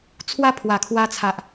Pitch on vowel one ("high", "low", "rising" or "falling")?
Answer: high